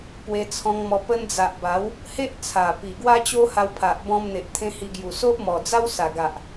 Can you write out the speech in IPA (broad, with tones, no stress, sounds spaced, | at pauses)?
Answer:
p w e˧ t͡sʰ ɔ̃˧ ŋ m ɔ˧ p ə˧ n d͡z a˨ ʔ b a˨˦ w | h e˦ ʔ t͡sʰ a˨˩ p i˨˩ ɡ w a˦ t͡ɕ o˦ h a˧ w pʰ a˨ ʔ b ɔ̃˧ m n̪ e˨ ʔ t̪ʰ ẽ˧ h i˧ ɡ j u˨˩ s o˦ ʔ m ɔ˨˩ d͡z a˦ w s a˨˩ ɡ a˨ ʔ